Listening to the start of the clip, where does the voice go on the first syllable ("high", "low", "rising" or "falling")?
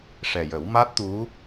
low